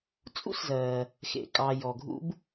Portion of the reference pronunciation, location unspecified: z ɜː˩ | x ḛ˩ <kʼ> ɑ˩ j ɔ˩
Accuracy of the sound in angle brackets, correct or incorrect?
correct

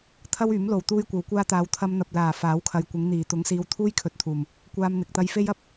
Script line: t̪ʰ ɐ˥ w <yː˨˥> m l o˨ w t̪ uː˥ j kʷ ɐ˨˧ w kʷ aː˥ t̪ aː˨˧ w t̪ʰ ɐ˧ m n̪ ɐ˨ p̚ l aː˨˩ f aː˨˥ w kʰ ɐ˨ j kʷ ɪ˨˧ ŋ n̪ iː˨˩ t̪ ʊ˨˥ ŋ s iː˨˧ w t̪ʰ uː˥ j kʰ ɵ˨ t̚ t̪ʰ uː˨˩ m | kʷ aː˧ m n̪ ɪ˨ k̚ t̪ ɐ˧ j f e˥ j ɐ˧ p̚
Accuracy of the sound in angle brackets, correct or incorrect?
correct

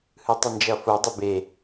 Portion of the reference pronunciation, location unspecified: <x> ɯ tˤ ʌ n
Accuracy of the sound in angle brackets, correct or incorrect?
incorrect: h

